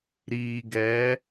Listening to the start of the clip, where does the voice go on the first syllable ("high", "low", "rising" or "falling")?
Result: low